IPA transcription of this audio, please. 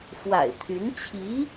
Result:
f w a̰˨˩ ɪ̯ t̪ʰ y˧˥ n t͡ɕʰ i˧˥

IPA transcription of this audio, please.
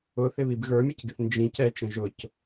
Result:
ʊ θ ɪ β i b ɣ ə˞ mʲ ʌ c ɡ ɪ θ n d͡ʒ ĩ c ɛ t͡ʃ ə̃ ʒ ʊ c

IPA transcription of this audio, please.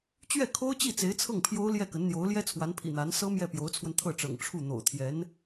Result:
t͡ɕ ɥ ɛ˥˩ kʰ o˥ ʊ̯ t͡ɕ i˥˩ t͡s e˧˥ ɪ̯ t͡sʰ ɤ˥˩ ŋ pʰ j o˥ ʊ̯ l j ɛ˥˩ k ə˧˥ n n̪ j o˧˥ ʊ̯ l j ɛ˥ t͡sʰ w a˧˥ n pʰ ḭ˨˩ n̪ a˧˥ n s ɤ˥ m j ɛ˥˩ p j o˧˥ ʊ̯ t͡sʰ w ə˧ n t̪ʰ ɤ˥˩ ʈ͡ʂ ɤ̰˨˩ ŋ ʈ͡ʂʰ u˥˩ n̪ o̰˨˩ ʊ̯ t̪ʰ j ɛ˧˥ n

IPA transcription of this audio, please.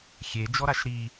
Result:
xʲ e d͡ʒ ɔ ɾ a ʃ ɾ i

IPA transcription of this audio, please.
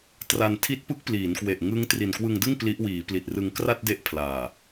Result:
t r a˧ n tʰ i˦˥ t̚ p ɯ˦˥ k̚ p l iː˩˦ n k w e˨˩ ʔ ŋ ɯ˦˥ ŋ t r i˨˩ n k w ɯ˧ ŋ d ɯ˥˩ ŋ p l i˦˥ ʔ w iː˩˦ p l i˨˩ t̚ r ɯ˧ ŋ k r a˥˩ t̚ d e˦˥ ʔ pʰ l aː˨˩

